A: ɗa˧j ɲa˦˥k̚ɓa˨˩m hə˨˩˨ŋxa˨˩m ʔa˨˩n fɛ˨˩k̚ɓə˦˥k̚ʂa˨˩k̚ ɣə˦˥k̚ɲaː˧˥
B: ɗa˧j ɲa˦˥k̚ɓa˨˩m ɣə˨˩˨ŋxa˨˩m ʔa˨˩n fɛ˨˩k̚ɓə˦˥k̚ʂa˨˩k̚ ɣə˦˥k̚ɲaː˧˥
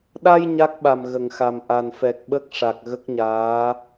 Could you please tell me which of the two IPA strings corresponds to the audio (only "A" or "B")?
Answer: B